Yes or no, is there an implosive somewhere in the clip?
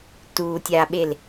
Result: yes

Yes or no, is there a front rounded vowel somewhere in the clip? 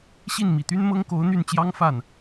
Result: yes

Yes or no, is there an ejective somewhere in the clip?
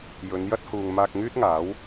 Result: no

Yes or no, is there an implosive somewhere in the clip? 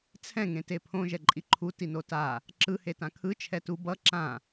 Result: no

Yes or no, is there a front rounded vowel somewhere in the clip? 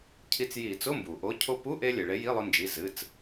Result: no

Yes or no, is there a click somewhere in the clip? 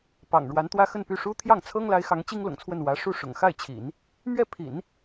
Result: no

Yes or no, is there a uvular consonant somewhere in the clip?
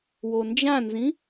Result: no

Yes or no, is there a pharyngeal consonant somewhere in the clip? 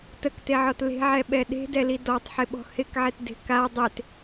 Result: yes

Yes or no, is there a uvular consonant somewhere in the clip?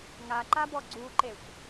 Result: no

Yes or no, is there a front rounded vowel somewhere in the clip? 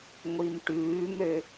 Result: yes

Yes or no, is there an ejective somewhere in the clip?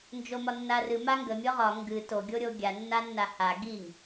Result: no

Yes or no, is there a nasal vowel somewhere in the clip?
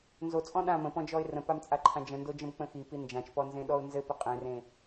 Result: yes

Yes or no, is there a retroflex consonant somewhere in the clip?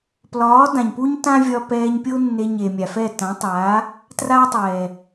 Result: no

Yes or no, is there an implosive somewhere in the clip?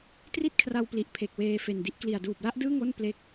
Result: no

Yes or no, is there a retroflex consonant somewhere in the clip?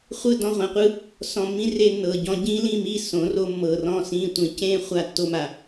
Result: no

